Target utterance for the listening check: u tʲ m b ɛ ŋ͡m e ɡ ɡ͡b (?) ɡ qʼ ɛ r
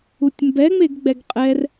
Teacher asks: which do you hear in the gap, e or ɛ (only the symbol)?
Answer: ɛ